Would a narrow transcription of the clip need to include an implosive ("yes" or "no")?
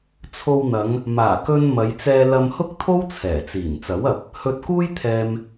no